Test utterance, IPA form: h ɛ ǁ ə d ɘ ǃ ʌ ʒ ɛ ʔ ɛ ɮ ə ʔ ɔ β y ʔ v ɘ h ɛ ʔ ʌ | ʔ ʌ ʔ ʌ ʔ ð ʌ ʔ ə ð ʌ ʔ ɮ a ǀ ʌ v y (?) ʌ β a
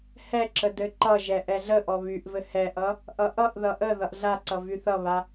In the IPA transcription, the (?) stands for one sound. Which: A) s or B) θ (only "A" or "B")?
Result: B